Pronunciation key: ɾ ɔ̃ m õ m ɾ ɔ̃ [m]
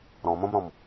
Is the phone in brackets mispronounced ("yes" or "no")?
no